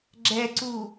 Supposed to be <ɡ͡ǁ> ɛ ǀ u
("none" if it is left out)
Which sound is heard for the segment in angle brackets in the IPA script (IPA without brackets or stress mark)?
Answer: ɡ͡ǁ